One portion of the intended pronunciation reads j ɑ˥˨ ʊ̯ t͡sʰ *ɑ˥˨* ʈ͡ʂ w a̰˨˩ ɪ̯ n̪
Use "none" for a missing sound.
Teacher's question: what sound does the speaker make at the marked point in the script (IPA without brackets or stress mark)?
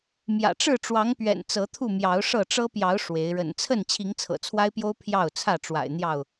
ä˥˨